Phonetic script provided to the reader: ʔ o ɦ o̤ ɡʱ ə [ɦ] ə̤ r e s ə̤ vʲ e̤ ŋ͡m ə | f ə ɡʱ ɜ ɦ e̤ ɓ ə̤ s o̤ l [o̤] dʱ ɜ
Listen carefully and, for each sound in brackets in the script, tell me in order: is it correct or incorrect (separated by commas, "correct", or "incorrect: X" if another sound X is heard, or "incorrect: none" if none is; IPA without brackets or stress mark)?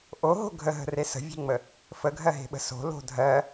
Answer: correct, correct